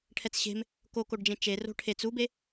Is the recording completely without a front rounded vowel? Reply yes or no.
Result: yes